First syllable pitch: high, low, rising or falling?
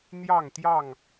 falling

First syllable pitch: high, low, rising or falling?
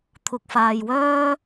low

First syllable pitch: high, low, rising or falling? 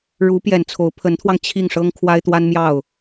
rising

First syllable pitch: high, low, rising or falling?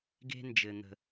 high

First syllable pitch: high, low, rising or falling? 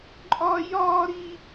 high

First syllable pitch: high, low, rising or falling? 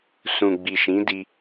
low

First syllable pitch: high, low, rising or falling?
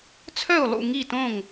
falling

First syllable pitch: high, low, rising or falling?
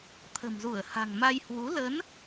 low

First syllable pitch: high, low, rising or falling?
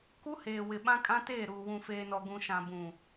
high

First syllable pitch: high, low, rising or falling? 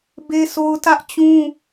high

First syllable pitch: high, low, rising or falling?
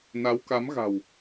rising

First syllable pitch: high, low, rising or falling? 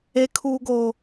high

